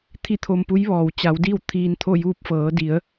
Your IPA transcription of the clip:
t̪ʰi˥˨t̪ʰo˧mpu˧˥jʋɔː˩w t͡ɕa˩˧wdi˥˨w t̪ʰiː˧nt̪ʰo˥˨juː˥˨p̚ fɤː˩˧di˩˧ə̯

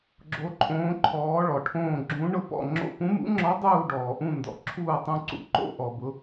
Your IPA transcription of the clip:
ɡ͡ǁo˧˥ǃʼõː˧˥ ǃʰɔː˧˥ɭɔ˨ʈʰõː˥˧ ɡ͡ǁũ˧˥ ɳʊ˥˧pɔ̰˥˧ŋ͡ǁo̰˥˧ pũ˧˥mṵ˧˥ŋ͡ǁɔ˧˥ dˤuː˥˧ɖɔː˨ʔũ˥˧ ndɔ̰˨ǁʰuː˥˧tˤũ˥˧ǀṵ˧˥ ǃo̰˥˧ʔɔ˨bʊ˧˥

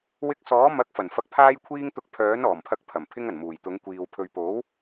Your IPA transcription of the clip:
wɪ˧k̚ sɔː˨˥ mɐ˨˥k̚fɐ˨˩n fɐ˨k̚pʰaː˧jkʷʰiː˧ŋt̪ʊ˨˥k̚ pʰœː˨˥nɔː˨˩mpʰɐ˧k̚pʰɐ˨˩m pʰɪ˧ŋɐ˨˩n muː˨˩jt̪ʊ˨˥ŋ kʷiː˨w pʰɵ˨ɥpo˨˥w

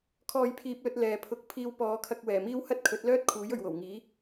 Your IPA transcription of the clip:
kʰɔː˧jpʰiː˧p̚lɵ˧t̚ lɛː˨˧pʰʊ˧k̚ pʰiː˧wpɔː˨˧kʰɐ˧k̚ wɛː˨˩miː˥w hɐ˥t̚kʰɵ˨˥t̚lœː˥t̚ kʰuː˨˥jɵ˨ɥwo˨˩w ŋiː˨˥

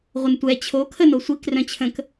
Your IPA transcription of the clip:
ʁʷəntʷɛ t͡ɕʰo kʰənosʷik rœ̃t͡ɕʰə̃k

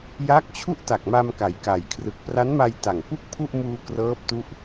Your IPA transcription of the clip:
ja˦˥k̚t͡ɕʰu˥˩ʔta˨˩k̚ ma˧mka˩˦jka˩˦jkʰrɯ˨˩k̚ pra˦˥nma˧jta˨˩ŋ pu˥˩k̚pʰu˥˩ʔmuː˧ krɤː˦˥p̚tu˦˥ʔ

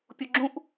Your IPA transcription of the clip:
pʲuɡ͡ǁũʔ

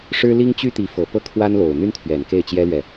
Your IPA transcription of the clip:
ʂɻ̩˥li˥ŋ t͡ɕy˥t̪i˧˥ fɤ˨˩pɤ˥˩ kʰwa˥nlo˨˩ʊ̯ n̪y˥nt̪ʰɥɛ˨˩n ke˥˩ɪ̯t͡ɕjɛ˥lɥɛ˨

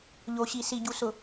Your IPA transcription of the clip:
ʎo˨ɕi˨ si˨ɟu˨ sʊ˨

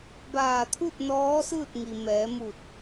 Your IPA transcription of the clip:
baː˧˩t̪ʰu˥˨t̚ nɔː˧˥sɯː˥˨t̚ ŋi˩ mɛː˩˧mu˧˩t̚

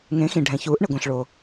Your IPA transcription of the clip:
ŋẽ˩˥xĩ˩ ɖʱɛ̃˩çuː˩˥ʔɳɪ˩ɡʷɛ̃˩ɬ ɭo˩

